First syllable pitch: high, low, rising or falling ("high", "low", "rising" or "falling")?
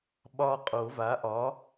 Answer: high